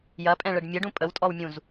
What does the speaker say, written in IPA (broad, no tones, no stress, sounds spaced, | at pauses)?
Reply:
j ɐ pʼ ɛ̃ ɭ ə ɖ mʲ ə ɖ ũ pʼ ə w tʼ ɔ w mʲ ũ z